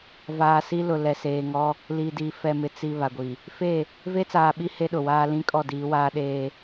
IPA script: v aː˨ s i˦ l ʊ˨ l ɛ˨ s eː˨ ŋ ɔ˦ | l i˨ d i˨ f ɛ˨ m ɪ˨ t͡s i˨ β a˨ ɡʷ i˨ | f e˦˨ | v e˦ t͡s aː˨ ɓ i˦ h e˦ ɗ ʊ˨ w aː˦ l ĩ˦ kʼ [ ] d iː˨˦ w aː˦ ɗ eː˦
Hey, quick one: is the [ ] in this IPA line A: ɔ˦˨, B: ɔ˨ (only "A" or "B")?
A